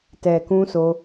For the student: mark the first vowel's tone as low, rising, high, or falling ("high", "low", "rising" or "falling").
low